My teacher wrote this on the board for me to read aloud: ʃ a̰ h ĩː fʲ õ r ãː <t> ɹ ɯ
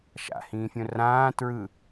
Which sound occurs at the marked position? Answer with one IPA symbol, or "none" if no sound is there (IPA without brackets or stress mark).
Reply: t